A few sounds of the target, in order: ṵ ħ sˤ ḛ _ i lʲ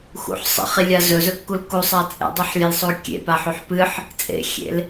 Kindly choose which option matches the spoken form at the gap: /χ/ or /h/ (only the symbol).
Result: χ